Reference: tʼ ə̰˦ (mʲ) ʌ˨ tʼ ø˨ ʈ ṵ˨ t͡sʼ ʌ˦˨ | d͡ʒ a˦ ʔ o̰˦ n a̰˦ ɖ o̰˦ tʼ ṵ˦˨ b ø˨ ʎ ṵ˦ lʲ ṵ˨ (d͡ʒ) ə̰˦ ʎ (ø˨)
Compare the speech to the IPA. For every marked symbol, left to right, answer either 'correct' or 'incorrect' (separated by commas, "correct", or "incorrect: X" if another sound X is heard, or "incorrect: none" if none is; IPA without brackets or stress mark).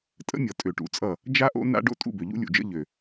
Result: correct, correct, correct